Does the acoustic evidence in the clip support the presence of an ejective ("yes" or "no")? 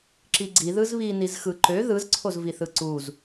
no